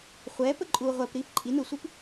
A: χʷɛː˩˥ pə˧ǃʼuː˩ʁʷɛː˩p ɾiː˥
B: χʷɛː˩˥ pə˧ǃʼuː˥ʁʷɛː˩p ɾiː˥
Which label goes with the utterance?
A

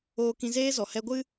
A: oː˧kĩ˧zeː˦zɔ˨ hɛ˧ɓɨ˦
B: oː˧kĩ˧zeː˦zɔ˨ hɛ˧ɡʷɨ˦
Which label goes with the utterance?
B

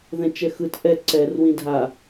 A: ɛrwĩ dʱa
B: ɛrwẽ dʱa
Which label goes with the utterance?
A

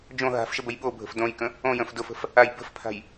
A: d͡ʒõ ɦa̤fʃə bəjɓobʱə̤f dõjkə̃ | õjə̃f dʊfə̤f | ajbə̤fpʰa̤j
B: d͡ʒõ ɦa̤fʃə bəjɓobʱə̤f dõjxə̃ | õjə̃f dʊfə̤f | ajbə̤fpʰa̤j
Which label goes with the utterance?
A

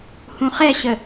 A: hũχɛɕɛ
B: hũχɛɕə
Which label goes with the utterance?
B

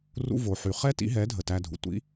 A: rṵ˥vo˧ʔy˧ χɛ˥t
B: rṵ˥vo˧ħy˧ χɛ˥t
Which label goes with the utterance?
B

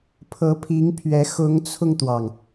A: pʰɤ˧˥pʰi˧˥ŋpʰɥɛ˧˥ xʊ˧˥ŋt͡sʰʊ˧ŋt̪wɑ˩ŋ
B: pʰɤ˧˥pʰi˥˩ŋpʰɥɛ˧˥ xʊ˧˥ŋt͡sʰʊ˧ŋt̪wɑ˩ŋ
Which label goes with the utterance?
A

